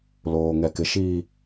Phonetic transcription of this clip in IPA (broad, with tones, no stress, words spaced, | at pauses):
loː˨ŋɛ˨kɪ˨ ʃiː˨